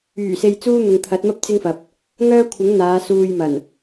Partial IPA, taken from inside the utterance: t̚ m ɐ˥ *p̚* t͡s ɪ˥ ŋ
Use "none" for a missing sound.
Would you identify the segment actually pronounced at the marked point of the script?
p̚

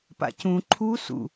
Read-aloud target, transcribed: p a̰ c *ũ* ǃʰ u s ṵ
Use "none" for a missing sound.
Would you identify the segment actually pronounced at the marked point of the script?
ũ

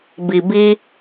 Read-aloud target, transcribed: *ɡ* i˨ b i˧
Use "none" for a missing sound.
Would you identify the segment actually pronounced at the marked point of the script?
b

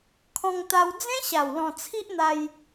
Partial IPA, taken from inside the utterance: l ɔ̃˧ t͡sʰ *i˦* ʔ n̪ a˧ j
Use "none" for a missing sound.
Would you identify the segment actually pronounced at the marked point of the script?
i˦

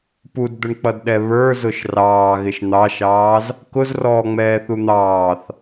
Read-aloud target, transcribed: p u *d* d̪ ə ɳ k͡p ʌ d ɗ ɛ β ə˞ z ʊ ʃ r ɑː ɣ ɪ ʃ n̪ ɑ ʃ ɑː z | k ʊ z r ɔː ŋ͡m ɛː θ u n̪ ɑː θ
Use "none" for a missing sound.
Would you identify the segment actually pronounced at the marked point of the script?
d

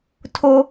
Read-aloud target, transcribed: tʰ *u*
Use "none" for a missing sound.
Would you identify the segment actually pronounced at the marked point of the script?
o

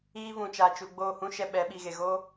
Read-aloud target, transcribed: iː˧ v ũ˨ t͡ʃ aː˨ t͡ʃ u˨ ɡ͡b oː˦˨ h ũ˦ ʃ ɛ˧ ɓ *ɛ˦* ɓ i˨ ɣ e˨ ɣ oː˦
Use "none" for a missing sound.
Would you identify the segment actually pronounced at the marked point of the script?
ɛ˨˦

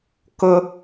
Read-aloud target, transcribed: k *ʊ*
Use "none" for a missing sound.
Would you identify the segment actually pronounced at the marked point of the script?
ʊ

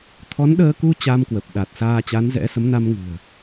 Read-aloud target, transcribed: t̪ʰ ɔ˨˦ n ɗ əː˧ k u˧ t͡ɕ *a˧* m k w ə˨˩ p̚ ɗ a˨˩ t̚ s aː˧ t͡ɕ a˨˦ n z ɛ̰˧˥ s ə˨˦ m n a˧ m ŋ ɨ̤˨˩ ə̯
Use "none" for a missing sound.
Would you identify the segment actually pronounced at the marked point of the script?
a˧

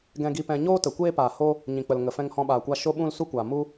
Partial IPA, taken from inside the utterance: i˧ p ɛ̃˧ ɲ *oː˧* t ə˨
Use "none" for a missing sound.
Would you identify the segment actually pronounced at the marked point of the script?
oː˦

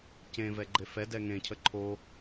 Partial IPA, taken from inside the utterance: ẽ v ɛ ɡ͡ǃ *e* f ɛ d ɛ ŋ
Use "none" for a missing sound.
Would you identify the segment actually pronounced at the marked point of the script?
e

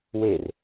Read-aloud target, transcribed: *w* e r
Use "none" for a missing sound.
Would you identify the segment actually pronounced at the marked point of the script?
w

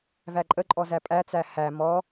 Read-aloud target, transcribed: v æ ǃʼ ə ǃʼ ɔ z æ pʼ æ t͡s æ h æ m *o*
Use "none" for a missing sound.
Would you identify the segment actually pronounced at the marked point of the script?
ɔ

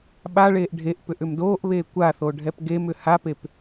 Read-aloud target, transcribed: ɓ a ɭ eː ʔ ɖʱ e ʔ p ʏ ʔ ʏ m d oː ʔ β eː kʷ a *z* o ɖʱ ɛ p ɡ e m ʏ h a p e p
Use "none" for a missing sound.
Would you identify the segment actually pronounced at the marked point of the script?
θ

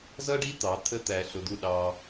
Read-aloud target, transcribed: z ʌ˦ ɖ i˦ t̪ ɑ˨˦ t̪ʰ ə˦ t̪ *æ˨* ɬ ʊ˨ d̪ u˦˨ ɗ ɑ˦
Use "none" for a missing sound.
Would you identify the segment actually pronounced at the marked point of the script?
æ˨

